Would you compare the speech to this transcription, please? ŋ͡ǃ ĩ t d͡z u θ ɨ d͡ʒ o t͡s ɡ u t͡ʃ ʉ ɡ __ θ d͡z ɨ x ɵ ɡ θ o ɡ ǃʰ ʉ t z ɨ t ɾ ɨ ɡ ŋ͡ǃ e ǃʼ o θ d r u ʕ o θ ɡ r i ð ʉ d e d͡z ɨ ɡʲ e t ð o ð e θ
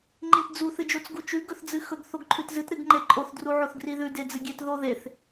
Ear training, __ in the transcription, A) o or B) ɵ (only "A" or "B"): B